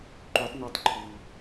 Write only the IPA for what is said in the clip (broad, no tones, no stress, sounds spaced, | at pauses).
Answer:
ǃ u tˤ n o tˤ ǃʰ u